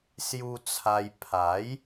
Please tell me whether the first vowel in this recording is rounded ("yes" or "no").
yes